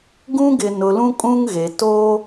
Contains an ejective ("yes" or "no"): yes